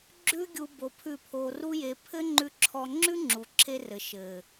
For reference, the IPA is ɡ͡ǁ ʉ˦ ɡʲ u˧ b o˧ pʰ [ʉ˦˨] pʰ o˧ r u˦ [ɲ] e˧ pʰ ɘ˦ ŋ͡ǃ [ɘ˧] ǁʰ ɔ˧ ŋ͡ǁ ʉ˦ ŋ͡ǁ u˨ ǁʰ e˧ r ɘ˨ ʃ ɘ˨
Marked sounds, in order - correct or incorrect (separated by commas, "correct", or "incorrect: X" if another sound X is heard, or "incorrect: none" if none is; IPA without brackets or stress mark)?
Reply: correct, incorrect: j, incorrect: ʉ˧